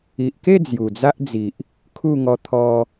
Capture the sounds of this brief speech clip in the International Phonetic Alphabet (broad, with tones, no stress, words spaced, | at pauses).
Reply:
i˨ʔke˥˧ d͡zju˨˩d͡za˦ʔd͡zi˨ʔ | kʰu˥˧ ŋɔ˧t̪ʰɔ˧